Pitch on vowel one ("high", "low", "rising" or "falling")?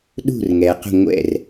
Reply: falling